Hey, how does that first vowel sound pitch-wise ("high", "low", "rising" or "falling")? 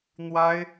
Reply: high